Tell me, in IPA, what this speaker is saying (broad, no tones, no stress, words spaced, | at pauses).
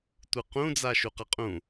tʷɯqũd͡za ʃuqaqʼũ